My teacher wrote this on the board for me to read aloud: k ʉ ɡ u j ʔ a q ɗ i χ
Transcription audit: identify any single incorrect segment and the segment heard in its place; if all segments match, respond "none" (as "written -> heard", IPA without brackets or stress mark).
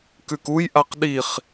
ɡ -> k